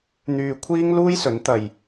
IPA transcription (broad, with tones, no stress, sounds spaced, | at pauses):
n̪ yː˧ kʷʰ iː˥ ŋ l uː˥ j s ɵ˨˥ n t̪ ɐ˧ j